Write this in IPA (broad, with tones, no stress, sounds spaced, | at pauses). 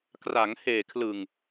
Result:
k r a˩˦ ŋ h eː˨˩ kʰ l ɯ˨˩ ŋ